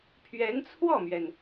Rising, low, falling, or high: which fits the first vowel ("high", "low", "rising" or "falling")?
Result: rising